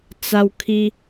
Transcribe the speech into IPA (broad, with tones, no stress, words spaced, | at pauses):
t͡sa˧wkʰi˧